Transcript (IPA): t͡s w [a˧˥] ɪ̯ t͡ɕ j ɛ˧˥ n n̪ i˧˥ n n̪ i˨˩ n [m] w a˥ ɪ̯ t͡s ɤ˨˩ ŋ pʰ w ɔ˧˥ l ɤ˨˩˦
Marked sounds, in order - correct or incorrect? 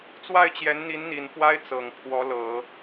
incorrect: a˥˩, incorrect: f

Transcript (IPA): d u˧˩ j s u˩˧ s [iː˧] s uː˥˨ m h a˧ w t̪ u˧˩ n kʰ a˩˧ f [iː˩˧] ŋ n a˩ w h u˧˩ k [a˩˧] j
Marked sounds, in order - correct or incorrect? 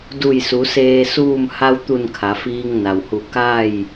incorrect: eː˧, incorrect: iː˧, incorrect: a˥˨

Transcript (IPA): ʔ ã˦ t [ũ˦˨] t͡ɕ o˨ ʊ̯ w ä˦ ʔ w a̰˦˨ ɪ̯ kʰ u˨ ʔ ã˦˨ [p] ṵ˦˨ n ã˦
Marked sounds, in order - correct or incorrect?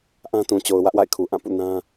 incorrect: ũ˨, correct

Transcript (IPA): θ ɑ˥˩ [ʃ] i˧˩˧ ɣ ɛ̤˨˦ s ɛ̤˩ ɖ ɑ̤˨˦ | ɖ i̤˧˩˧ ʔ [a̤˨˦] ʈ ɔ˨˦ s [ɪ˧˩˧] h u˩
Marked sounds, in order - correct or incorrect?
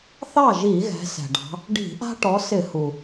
incorrect: ʒ, incorrect: a̤˦, correct

